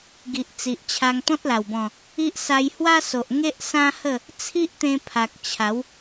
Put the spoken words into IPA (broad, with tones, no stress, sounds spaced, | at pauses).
ɡ i˨ ʔ t͡s i˨ ʔ t͡ɕʰ a˧ ŋ t̪ ɔ̃˦ t̚ l a˨˩ w b ɔ̃˨˩ | i˦ ʔ s a˧ j h w a˦ s o˨ ʔ ŋ e˦ ʔ s ã˦ h ə˥˧ | t͡sʰ i˦ ʔ t̪ ẽ˧ pʰ a˨ k̚ t͡ɕʰ a˨˦ w